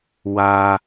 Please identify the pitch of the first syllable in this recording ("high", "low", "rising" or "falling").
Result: high